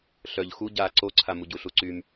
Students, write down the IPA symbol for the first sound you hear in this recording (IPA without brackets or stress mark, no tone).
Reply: ɬ